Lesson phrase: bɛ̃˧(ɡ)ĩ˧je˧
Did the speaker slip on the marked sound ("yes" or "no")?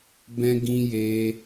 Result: no